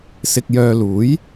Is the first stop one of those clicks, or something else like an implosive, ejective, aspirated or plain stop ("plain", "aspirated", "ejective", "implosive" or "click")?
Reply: plain